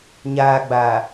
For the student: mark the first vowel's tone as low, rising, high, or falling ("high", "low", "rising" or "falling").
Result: low